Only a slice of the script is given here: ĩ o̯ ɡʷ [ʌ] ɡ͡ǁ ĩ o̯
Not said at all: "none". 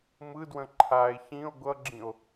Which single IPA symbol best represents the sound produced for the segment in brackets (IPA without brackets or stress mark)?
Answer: ʌ